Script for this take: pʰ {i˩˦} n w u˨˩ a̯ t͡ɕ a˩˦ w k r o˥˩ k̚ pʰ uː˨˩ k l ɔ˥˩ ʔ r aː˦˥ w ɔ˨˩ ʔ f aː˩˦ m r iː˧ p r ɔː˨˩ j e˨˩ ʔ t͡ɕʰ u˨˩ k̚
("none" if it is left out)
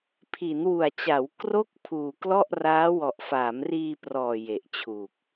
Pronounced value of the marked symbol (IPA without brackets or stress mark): i˩˦